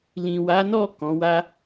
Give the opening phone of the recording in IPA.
l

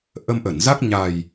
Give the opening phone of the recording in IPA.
ʔ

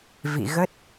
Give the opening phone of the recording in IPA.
v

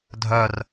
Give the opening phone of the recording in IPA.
dʱ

